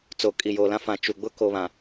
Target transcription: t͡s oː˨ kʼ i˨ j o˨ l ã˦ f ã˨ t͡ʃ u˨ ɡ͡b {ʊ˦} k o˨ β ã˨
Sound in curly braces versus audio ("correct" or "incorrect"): correct